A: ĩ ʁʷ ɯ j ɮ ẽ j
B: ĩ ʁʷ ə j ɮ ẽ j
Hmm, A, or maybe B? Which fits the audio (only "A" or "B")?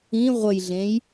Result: B